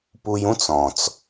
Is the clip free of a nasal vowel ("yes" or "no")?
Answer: no